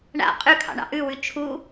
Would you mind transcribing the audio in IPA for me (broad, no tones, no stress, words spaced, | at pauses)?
ɳa̰ qʼʉkʰɑ̰ ɳɑ̰ʔʉwʉ t͡ʃʰu